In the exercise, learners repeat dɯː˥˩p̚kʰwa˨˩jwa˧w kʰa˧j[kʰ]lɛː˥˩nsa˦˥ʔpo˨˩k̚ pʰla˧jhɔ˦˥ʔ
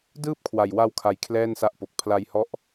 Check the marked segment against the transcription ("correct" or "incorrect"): correct